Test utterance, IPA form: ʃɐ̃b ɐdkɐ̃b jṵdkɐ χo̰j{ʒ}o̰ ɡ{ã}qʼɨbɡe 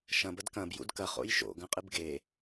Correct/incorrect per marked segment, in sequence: incorrect: ʃ, incorrect: ɐ̃

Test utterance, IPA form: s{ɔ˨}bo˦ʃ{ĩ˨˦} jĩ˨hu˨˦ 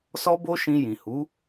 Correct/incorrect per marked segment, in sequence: incorrect: ɔ˦, incorrect: ĩ˧

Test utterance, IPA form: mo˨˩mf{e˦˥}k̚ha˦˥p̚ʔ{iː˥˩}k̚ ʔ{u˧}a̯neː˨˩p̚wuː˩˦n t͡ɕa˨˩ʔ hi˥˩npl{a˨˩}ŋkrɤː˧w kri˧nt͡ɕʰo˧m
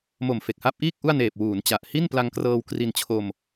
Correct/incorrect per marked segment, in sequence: incorrect: e˨˩, correct, incorrect: u˥˩, incorrect: a˧

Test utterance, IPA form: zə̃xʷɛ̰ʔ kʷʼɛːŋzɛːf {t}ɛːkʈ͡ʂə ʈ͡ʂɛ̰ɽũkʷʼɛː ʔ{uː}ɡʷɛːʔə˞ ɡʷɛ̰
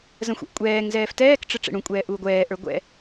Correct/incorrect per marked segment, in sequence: correct, correct

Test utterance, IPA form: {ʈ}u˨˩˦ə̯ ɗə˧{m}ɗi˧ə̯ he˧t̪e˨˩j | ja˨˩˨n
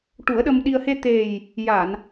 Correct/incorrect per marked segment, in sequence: correct, correct

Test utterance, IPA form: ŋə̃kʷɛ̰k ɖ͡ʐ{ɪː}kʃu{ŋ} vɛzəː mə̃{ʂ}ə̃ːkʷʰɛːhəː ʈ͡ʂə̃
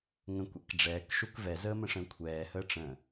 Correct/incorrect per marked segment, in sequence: incorrect: ɛː, incorrect: k, correct

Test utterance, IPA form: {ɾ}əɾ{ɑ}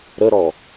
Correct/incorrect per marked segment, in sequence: correct, incorrect: ɔ

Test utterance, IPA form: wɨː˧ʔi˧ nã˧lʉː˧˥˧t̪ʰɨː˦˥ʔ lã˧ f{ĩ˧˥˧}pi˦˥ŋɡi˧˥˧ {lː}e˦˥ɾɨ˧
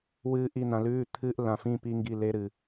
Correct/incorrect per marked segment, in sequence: correct, incorrect: l

